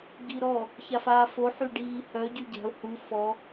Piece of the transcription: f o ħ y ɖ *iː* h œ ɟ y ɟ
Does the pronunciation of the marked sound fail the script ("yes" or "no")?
no